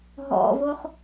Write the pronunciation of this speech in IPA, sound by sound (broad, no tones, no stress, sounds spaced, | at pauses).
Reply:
ɦ ɔ̰ v o χ